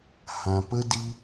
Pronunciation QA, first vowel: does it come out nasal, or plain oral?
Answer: nasal